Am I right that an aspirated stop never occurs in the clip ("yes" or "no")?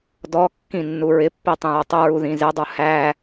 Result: yes